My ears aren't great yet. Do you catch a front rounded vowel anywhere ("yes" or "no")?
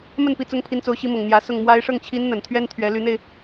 yes